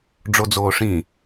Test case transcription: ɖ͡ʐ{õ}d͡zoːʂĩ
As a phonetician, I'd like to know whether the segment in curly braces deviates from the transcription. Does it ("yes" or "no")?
yes